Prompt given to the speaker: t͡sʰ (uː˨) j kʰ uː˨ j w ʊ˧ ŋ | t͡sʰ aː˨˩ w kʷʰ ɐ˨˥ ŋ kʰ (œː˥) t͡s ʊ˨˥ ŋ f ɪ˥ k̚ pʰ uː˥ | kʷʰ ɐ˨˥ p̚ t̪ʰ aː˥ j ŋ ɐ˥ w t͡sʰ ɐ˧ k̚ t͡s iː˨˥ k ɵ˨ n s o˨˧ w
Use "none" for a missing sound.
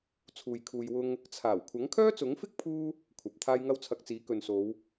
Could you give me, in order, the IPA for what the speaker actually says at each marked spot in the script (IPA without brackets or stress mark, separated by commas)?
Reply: uː˨, œː˥